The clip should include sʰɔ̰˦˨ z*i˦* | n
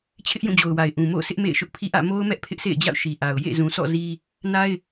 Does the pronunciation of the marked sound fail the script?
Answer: no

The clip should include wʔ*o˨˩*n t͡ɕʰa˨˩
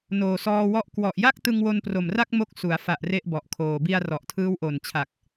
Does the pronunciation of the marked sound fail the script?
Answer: no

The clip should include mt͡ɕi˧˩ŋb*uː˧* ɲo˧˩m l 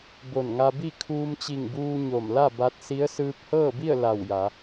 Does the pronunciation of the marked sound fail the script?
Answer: no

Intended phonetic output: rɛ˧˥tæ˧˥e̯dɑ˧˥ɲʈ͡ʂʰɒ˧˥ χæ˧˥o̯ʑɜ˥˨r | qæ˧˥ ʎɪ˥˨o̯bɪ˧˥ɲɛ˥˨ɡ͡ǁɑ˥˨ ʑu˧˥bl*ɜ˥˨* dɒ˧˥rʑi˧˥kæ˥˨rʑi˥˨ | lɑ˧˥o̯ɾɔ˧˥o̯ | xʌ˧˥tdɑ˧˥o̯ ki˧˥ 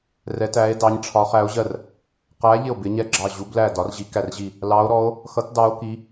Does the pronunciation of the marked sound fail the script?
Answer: yes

